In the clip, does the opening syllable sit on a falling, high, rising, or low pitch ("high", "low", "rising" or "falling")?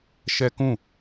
high